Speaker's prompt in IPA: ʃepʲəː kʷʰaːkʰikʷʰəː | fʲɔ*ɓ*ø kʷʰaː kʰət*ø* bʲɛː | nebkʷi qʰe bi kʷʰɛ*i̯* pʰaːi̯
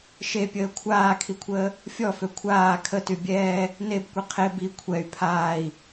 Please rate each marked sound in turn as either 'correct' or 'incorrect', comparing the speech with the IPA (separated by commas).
incorrect, incorrect, incorrect